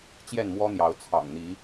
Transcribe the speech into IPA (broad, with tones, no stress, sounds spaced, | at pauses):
t͡ɕ j ɛ˥˨ n m w ɔ˦ n̪ j ɑ˨˦ ʊ̯ t͡sʰ ɑ̰˨˩ ŋ n̪ i˨˦